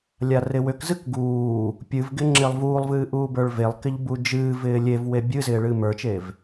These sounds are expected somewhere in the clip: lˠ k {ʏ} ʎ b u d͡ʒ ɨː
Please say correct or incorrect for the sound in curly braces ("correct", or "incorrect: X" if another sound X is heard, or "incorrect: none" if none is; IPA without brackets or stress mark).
incorrect: ɪ